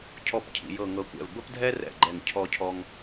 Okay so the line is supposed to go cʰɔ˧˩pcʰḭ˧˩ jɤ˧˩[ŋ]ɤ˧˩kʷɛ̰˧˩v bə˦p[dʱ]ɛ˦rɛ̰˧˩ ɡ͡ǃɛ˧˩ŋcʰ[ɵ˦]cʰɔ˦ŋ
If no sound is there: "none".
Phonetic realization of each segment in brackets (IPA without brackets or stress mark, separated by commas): ŋ, dʱ, ɔ˦